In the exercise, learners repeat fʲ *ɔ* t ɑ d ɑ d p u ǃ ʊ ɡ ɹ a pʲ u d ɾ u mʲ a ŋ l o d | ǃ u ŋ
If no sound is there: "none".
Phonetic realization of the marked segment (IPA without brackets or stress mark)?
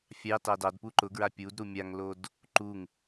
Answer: ɑ